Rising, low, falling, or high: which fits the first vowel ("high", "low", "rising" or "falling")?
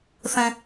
high